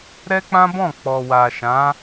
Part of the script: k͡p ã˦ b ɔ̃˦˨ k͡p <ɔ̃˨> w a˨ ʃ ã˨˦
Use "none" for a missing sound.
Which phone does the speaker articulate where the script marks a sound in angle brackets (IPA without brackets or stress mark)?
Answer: ɔ˨